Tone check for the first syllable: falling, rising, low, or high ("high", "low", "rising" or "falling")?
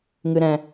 low